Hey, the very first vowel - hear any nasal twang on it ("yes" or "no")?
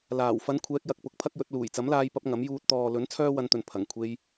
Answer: no